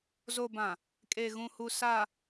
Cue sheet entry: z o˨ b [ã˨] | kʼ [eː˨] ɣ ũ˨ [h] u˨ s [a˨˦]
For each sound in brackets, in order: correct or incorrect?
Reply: correct, incorrect: e˨, correct, incorrect: a˨

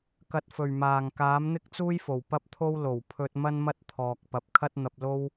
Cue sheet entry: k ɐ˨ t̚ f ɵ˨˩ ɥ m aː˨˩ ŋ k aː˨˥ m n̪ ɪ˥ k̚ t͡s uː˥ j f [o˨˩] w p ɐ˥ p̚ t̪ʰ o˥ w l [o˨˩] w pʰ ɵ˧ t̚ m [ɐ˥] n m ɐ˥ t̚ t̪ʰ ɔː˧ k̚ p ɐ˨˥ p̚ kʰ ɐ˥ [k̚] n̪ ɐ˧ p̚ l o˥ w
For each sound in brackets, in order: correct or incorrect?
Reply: correct, correct, correct, incorrect: t̚

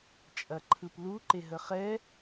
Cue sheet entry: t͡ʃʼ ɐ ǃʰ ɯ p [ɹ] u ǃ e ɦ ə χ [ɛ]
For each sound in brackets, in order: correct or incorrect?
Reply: incorrect: l, correct

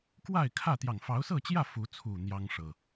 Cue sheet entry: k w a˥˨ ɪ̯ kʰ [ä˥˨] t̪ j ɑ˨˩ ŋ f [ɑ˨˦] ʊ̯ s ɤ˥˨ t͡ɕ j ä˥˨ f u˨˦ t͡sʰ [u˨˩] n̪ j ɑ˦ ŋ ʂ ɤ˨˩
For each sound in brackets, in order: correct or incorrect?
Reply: correct, correct, correct

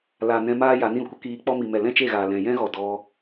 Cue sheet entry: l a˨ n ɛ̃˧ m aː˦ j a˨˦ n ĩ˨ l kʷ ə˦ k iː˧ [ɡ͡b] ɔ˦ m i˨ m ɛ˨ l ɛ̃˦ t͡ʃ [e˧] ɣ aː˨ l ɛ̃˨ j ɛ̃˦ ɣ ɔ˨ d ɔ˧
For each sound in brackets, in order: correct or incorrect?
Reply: incorrect: k͡p, incorrect: e˦˨

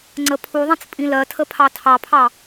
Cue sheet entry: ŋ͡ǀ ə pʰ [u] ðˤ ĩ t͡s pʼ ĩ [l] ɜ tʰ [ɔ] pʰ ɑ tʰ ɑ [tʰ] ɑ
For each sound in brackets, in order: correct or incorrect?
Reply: correct, correct, incorrect: ə, incorrect: pʰ

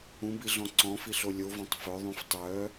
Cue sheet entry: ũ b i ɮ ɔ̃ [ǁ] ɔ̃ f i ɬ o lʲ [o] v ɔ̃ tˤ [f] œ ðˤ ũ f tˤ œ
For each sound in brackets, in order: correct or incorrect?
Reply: incorrect: ǀ, correct, correct

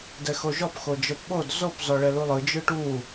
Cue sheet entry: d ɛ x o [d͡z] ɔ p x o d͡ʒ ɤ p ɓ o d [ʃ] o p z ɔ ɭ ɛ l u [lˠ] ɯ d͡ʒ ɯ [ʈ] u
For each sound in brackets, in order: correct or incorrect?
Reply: incorrect: ʒ, incorrect: z, correct, correct

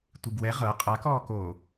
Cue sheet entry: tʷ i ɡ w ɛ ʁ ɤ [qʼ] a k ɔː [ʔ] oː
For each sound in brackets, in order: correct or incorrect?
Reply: correct, incorrect: k

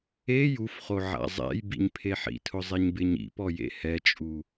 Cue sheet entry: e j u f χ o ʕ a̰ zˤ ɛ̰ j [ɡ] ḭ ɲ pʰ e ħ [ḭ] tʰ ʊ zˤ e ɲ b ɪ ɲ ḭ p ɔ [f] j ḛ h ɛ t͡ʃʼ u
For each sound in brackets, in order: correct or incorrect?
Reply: incorrect: b, correct, incorrect: none

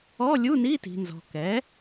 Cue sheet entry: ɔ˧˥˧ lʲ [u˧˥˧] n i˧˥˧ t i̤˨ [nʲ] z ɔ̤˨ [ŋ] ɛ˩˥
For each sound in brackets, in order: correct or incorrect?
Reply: correct, incorrect: n, incorrect: k

